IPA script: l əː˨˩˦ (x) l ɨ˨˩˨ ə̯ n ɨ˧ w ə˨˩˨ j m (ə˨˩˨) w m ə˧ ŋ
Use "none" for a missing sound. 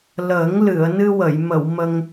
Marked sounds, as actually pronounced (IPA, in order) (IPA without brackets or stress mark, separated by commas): ŋ, ə˨˩˨